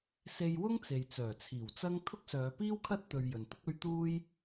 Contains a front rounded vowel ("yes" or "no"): yes